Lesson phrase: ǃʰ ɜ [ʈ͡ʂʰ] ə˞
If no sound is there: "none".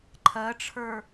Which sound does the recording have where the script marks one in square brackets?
ʈ͡ʂʰ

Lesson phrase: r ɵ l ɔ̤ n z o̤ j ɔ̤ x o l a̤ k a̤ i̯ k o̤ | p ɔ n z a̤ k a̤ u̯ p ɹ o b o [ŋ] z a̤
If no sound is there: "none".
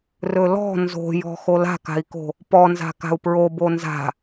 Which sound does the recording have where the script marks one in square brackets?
n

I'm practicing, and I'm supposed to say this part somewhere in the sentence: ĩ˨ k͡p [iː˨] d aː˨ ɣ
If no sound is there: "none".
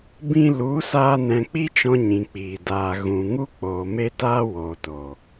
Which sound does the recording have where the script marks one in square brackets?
iː˨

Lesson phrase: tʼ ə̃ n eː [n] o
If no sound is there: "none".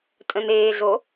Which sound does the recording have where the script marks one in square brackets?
ɮ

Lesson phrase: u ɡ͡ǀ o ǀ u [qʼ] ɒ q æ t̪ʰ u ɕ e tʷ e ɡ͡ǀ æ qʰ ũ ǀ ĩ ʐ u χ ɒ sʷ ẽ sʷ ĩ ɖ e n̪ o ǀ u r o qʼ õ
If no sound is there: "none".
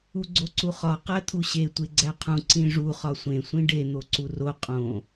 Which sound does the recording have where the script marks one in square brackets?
χ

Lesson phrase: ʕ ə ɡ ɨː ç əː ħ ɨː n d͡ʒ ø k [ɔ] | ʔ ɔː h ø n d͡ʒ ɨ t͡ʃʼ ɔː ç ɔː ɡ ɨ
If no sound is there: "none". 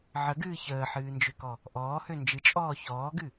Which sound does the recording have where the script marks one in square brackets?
ɔ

